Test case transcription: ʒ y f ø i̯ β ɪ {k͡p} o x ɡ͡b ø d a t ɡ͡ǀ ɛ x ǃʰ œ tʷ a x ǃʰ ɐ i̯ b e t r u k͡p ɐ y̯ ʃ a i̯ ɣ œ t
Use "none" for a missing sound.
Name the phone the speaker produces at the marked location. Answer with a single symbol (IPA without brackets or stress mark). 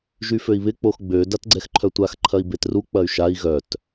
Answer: k͡p